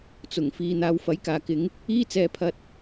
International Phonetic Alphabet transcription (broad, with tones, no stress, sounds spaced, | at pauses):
t͡s ʊ˨˩ ŋ f iː˨ n̪ aː˨˧ w f ɐ˨˥ j k aː˨ k ɪ˨˥ ŋ | iː˥ t͡s ɛː˧ pʰ ɐ˧ t̚